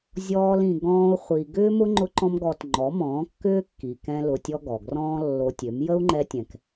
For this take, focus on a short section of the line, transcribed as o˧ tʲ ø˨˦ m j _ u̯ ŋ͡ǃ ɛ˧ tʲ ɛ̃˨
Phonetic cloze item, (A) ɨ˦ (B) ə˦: B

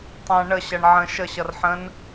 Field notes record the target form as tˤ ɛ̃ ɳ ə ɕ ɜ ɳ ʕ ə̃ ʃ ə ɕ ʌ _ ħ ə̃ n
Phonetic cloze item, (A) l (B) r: B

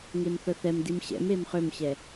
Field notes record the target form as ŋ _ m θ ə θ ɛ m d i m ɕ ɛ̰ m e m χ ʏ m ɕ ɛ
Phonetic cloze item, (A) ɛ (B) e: B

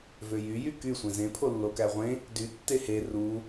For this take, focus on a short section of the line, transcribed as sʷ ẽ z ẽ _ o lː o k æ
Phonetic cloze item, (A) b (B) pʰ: B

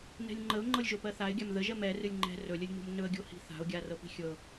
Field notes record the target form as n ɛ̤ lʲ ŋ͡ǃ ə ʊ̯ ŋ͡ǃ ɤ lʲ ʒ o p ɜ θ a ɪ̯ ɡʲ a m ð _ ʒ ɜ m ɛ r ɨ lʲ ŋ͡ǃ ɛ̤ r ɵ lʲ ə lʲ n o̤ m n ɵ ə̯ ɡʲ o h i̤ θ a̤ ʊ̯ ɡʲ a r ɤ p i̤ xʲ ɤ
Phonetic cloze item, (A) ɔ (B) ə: B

